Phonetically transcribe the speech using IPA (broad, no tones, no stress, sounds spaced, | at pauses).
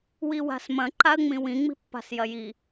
w i w a̤ s m ɐ̃ ǃ a ə̯ ŋ͡m ĩ w ĩ ŋ͡m i̤ pː a̤ s j ɐ j i